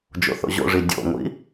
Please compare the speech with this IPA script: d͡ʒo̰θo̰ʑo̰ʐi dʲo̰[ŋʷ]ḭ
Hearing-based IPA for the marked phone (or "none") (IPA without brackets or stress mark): ŋʷ